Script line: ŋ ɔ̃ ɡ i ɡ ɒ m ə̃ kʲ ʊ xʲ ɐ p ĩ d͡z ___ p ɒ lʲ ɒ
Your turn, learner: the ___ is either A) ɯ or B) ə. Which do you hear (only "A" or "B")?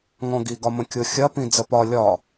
B